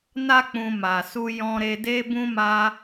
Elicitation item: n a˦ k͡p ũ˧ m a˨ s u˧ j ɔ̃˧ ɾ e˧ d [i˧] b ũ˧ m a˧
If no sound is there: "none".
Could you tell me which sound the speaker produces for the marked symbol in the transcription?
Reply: e˧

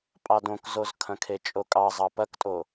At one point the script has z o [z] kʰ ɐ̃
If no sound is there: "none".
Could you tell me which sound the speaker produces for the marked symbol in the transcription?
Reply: z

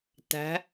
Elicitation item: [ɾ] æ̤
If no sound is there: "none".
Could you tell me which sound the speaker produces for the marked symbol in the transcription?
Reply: t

